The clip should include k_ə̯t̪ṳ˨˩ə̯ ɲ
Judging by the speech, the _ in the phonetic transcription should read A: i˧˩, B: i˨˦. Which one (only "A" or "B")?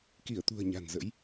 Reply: A